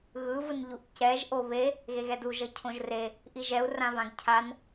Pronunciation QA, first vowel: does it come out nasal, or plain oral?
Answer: oral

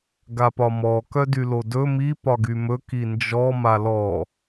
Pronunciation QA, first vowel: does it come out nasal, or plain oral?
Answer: oral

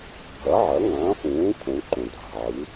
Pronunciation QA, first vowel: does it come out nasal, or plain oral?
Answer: oral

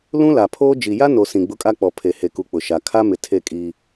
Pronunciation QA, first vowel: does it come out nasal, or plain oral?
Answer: nasal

